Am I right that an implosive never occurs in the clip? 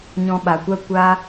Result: no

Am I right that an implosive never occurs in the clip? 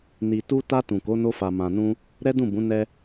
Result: yes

